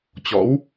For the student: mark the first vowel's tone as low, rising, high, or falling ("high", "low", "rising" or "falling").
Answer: rising